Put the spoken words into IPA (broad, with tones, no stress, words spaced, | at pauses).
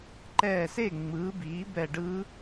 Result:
ǃɛː˧˩se˥˩ ŋ͡mɯː˩˥biː˩˥ bɛ˧˩ɖɯ˧˥